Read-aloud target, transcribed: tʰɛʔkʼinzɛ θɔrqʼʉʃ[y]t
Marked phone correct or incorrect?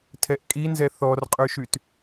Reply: correct